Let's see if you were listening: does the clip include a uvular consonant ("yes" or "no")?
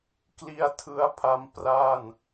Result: no